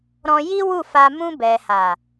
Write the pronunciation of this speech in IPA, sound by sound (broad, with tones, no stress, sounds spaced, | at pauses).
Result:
ɾ ɔ̃˧ j i˦ w u˦˨ f a˧ m ũ˧ b ɛ˨ h a˨